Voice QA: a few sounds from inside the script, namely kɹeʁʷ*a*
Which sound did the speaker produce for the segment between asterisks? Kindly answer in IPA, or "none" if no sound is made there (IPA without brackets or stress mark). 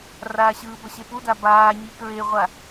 a